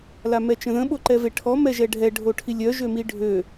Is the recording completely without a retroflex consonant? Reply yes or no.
no